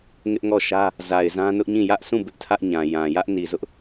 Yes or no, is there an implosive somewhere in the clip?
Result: no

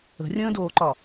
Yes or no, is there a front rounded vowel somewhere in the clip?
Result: no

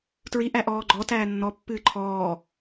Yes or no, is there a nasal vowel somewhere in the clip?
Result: no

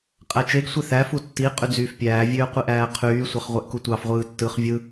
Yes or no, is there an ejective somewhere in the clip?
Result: yes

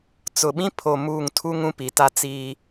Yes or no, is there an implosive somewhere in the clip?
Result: yes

